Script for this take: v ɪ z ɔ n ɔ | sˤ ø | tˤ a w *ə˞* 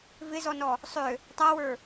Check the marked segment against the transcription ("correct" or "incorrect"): correct